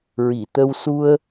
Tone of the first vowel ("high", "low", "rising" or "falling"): low